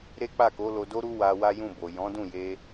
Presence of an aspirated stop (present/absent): absent